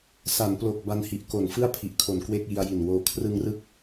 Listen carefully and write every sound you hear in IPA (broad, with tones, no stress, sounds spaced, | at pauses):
s a˩˦ n p l o˨˩ k̚ b a˧ n h i˨˩ ʔ k o˨˩ n f ɯ˥˩ a̯ pʰ i˨˩ ʔ kʰ o˨˩ n k w e˥˩ k̚ j i˧ a̯ j i˨˩ n w oː˧ kʰ r ɯ˧ ŋ r ɯ˦˥ k̚